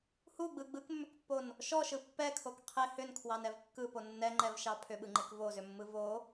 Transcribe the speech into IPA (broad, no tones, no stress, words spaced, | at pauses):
huɡ͡bɯ ɡ͡bɯkmːʏkpːon | ʃɔʃɯ pːɛkʰok qʰe hʏnkʰwɑnɛv kːɯpo nːɛŋ͡ǃɛvʃɑ pʰʏɓɯŋ͡ǃek vozʏmːɯ vo